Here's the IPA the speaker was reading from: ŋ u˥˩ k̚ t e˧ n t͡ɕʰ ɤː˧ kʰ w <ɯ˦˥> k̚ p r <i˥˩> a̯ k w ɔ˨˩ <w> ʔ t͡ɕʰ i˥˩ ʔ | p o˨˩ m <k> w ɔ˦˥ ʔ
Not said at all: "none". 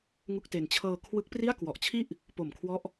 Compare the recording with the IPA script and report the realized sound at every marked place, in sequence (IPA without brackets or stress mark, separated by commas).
ɯ˦˥, i˥˩, none, kʰ